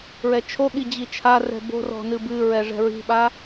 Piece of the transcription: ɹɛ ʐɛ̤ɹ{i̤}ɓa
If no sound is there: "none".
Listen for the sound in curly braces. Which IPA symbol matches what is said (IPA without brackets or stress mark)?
i̤